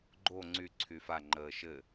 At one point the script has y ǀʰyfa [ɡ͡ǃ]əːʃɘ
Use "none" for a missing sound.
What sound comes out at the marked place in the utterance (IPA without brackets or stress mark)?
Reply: ŋ͡ǃ